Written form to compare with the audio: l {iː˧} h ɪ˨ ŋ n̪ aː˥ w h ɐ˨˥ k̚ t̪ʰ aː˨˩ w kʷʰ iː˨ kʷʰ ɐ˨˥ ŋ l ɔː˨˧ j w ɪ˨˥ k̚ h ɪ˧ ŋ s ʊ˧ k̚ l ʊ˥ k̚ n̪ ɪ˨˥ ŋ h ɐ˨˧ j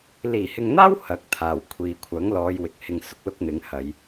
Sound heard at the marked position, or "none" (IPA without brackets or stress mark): iː˨˩